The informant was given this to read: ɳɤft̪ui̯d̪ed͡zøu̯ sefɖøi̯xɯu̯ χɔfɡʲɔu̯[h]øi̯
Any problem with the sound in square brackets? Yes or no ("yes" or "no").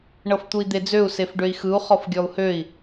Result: no